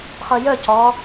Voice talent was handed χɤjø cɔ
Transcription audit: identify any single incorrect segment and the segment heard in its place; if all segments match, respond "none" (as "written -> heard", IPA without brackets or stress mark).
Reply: ø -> ə